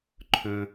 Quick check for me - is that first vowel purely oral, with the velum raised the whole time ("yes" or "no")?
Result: no